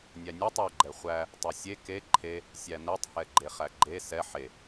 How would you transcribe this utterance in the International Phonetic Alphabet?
nʲ æ nʲ æ tˤ ɛ ɡ͡ǃ ɛ χʷ æ | tˤ ɛ sʲ e k e ǃʰ e | sʲ æ n ɛ tˤ h ɛ ɡ͡ǃ e χ æ ɡ͡ǃ e s ɛ ħ e

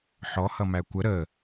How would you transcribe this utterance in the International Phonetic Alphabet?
ħ ɔ h ʌ m æ kʷ ə ɾ ə

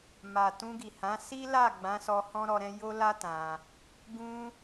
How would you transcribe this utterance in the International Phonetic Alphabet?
m a˨ t ũ˧ ɡ i˨ h ã˨˦ s i˦ l a˦˨ ɡ͡b ã˨˦ s ɔ˧ h ɔ̃˦ ɾ ɔ˧ ɾ ɛ̃˦ j o˦ l a˦ t ã˧ | ɡ ũ˧

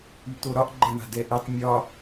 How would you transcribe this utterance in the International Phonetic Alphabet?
y t̪ o ɾ ɒ ʔ ɡ͡ǃ ɛ ɳ a̤ d ɛ ʔ ɘ tˤ mʲ ɒ

